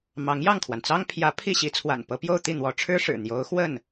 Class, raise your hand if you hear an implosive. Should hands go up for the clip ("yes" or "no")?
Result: no